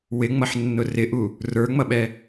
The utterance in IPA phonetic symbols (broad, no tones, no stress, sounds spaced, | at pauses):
w ɪ ŋ͡m ʌ ħ nː ʊ r ɪ ʔ u | r ə˞ ŋ͡m ʌ ɓ ɛ